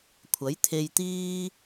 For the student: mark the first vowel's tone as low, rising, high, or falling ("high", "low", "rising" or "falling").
rising